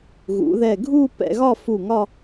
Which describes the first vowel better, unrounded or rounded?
rounded